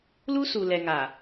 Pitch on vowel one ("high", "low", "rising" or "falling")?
high